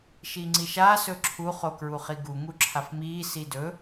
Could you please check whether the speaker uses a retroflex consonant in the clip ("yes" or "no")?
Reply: no